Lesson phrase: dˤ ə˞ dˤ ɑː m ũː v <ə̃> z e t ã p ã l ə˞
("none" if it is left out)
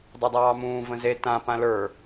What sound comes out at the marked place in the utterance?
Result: ə̃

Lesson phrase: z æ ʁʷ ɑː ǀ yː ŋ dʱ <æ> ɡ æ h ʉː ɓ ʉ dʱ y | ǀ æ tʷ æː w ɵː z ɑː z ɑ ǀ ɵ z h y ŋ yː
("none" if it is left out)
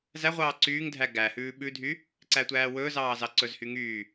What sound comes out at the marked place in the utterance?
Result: æ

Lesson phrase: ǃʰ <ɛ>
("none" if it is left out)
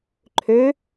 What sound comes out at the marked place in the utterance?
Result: ø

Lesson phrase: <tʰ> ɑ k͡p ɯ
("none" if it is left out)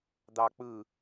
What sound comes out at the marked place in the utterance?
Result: d̪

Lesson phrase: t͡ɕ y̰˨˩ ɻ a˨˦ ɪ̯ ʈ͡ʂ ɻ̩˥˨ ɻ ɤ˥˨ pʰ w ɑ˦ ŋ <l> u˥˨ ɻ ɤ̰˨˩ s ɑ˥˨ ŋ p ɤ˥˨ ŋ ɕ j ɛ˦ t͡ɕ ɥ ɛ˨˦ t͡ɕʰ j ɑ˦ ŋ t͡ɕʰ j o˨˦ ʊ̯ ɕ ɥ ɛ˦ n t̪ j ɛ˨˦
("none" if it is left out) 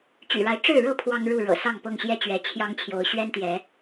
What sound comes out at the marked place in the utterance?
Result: ɻ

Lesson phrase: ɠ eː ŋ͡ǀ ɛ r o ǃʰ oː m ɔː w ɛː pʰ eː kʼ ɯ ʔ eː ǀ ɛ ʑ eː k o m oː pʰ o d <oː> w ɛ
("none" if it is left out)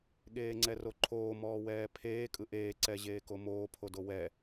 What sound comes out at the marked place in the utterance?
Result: o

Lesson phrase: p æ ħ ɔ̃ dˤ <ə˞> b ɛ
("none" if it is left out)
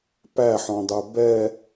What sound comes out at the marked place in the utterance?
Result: ə˞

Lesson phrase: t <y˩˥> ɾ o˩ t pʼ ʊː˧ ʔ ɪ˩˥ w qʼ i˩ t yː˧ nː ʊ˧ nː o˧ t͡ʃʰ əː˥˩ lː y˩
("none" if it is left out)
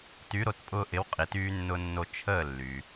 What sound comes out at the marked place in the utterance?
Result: y˩˥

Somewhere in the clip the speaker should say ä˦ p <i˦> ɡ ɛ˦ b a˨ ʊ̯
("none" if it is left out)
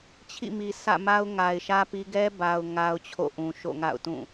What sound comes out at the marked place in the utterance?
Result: i˦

